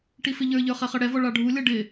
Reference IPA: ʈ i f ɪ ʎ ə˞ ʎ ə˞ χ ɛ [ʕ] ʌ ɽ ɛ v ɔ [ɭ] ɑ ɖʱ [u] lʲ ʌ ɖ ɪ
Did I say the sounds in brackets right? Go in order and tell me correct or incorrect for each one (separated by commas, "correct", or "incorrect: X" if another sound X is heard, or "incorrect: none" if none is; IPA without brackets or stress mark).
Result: incorrect: χ, correct, correct